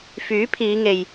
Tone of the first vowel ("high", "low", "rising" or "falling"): rising